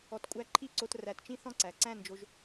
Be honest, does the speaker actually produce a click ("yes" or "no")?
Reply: yes